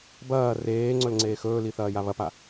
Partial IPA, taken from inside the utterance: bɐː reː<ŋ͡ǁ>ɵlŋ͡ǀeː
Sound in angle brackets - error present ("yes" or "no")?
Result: yes